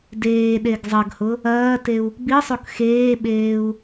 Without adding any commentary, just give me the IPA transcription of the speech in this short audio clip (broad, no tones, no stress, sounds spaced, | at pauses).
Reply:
d eː ɗ e ɡ zˤ ɐ ɡ h ʊ | ɐː t e u̯ | b i sˤ o k x eː ɓ eː u̯